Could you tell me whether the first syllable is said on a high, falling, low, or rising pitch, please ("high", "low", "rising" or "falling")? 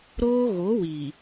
high